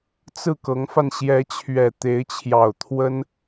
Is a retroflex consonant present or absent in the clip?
absent